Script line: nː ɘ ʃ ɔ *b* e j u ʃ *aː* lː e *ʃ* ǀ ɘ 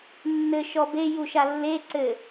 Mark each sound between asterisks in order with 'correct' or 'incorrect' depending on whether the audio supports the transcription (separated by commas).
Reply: correct, incorrect, incorrect